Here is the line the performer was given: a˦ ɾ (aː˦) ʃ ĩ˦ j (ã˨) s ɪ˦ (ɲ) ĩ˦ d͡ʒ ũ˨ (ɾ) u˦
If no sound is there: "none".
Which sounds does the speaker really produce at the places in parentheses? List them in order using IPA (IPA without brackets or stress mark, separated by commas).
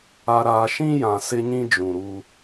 aː˦, ã˨, ɲ, ɾ